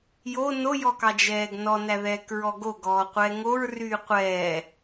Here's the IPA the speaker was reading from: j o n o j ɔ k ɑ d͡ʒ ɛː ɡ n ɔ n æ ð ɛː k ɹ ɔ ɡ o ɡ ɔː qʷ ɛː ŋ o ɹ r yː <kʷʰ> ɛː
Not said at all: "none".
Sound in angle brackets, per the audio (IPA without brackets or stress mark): qʷ